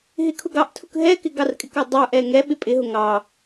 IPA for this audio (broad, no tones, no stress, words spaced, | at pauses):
ɦɪkʰʊɡɑʔtʰʊk ɦɛkɪ ɡɑrkʼɪkɑ dˤə˞ʔɛ ŋɛɓɪ pʼɪɦʊ ŋɑ